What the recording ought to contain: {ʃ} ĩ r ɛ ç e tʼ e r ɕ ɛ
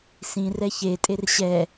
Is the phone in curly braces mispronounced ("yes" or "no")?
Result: yes